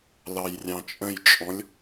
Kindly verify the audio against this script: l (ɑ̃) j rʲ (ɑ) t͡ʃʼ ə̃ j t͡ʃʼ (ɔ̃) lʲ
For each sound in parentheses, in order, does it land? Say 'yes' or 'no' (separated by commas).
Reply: no, no, yes